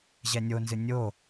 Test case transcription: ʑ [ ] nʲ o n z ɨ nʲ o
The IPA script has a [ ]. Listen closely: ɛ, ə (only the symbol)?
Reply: ɛ